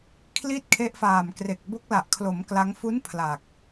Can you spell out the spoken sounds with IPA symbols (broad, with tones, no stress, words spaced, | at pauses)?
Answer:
kʰli˥˩t̚ kʰe˦˥ʔfaː˨˩mkre˨˩k̚ bo˦˥k̚la˨˩ʔkʰlo˩˦m kla˦˥ŋ fu˦˥n pʰla˨˩k̚